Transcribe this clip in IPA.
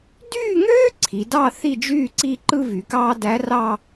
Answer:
d yː˥˧ ŋ øː˥ ǀʰ i˩˧ d ɑ˥˧ θ i˥˧ d͡ʒ yː˥˧ ǀ i˥˧ ǃ ɯ˥ v y˩˧ k ɑː˥ d æ˧˥ r ɑ˥˧

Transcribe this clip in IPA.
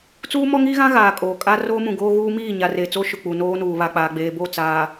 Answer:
t͡s uː˦ m ɔ˦ ŋ iː˦ ɣ ã˦ ɣ aː˨ kʼ oː˨ kʼ a˦ r oː˦ m ũ˨ ɡ oː˦ ɣ uː˦ m iː˦˨ ɲ a˨ r eː˨ t͡s o˦ ʃ ʊ˨ k͡p u˨ n oː˦ n uː˨ β a˨ k͡p aː˨ ɡ͡b eː˨ b o˦˨ t͡s aː˨

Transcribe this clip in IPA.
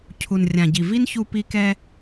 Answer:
cʰ u˨ n rʲ ã˨ ɟ i˨ v i˦ n ç u˧ p i˧ k ɛ˧

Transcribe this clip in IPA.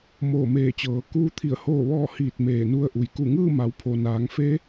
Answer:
m oː˧˩ m eː˧˩ t͡ɕ ɤː˩˧ k uː˧ t̪ʰ i˧˩ ə̯ h oː˥˨ ʋ ɔː˥˨ h iː˧˩ t̚ m eː˧˩ n u˧˥ ə̯ ʔ u˩ j k u˧˩ ŋ ɯː˥˨ m a˩˧ w pʰ o˩ n aː˩˧ ŋ f e˧˥

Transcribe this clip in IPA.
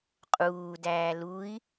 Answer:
qʼ uː d æː l u i̯

